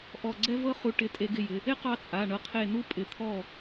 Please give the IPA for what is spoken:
ʔɔ˧˩ɡ͡ǀɛ˦ vɤ˦χu˨˦ ʈɪ˩˧˩tʼe˨˩˦ɡɪ˩˧˩ jɪ˩˧˩ | ɪ˥˨ qɑ˦t͡sʼa˩˧˩ ɳɤ˧˩qʰe˧˩nu˦ pʼɪ˧˩t̪ʰɔ˥˨

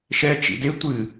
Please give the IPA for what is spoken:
ʃɛt͡ʃḭ de tʷɨ

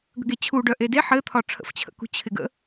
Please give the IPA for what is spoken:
ɡə̤ɡet͡ɕʰu ɖœʔede ħɘt̪ʰɒ ʈ͡ʂʰə̰ft͡ɕʰə̰kṳ t͡ɕʰɪɡə̰

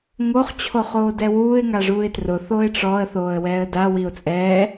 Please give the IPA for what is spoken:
ŋoχ t͡ɕʰoχoːdɛwuːɪ̯ ŋaʐuːɪ̯trʊ θoɪ̯ʈ͡ʂɔə̯ θoːə̯wɛːə̯da wiʊ̯t͡sʼɛː

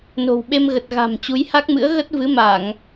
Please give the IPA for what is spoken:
no̤˨˩wɓe˧mɣə˨˩t̚ ɣa̤˨˩m t͡ɕu˨˦jha˦˥k̚mɨ̰˧˥ə̯ ɣə˦˥t̚vɨ˨˦ ma˧˩˨ŋ

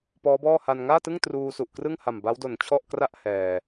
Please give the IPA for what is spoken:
pɔː˦˥bɔː˥˩ha˧n ŋaː˥˩tɯ˥˩ŋ truː˧su˨˩ʔkrɯ˥˩ŋha˨˩m ba˦˥wdo˨˩nt͡ɕʰɔ˥˩ʔkra˥˩ʔ hɛː˨˩

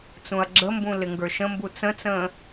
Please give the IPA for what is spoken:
t͡sũɐ̯ɡ͡ǁəmbũ lɪŋɡə˞ʃə̃mbu t͡sə̃t͡sə̃ː

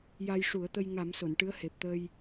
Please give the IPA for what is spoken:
ja˧jʂu˨˩˦ə̯t̪ə˧j ŋa˨˩˦m so˨˩˨nʈɨ˧˥ə̯he˨˩p̚t̪əː˧j

